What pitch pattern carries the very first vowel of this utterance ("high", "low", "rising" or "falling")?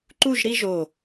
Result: falling